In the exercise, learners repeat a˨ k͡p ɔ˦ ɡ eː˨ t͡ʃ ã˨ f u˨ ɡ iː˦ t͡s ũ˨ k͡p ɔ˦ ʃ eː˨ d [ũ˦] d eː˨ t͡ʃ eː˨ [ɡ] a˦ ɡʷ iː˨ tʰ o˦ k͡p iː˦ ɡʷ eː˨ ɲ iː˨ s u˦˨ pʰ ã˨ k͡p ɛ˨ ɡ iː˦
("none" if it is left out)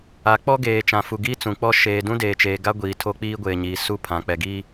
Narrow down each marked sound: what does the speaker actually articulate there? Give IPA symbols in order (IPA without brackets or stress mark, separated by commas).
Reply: ũ˦, ɡ